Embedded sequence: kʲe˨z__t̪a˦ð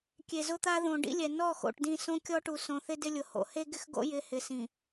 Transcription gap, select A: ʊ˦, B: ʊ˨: A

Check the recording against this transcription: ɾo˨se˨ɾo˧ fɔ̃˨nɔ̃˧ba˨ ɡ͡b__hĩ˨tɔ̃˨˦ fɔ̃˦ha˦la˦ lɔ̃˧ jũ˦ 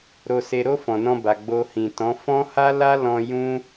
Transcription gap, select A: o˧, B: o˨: A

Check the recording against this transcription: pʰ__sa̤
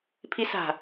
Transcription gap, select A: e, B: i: B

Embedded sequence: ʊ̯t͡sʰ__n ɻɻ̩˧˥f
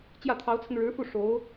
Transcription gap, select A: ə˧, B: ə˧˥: A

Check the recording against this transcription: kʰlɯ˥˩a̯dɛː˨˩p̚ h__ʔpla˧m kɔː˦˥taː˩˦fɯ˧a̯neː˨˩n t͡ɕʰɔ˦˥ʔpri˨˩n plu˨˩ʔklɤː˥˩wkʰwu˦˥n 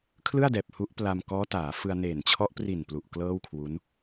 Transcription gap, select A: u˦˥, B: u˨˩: A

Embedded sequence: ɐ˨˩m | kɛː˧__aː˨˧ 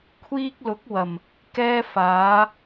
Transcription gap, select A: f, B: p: A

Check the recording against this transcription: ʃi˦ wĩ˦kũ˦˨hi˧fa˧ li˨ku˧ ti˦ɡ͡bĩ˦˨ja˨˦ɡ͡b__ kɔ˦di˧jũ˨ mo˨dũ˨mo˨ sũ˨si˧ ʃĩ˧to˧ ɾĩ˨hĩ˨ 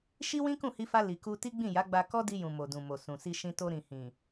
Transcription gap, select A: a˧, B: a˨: A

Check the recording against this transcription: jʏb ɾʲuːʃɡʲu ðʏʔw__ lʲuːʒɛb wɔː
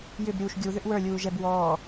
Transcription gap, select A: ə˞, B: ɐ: A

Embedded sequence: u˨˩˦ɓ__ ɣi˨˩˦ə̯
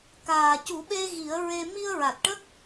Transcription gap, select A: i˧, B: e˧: B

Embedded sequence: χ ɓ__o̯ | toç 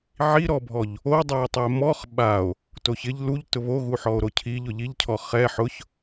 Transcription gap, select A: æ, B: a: B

